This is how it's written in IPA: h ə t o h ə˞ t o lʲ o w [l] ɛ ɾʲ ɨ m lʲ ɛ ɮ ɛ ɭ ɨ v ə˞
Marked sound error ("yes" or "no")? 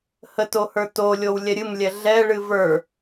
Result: yes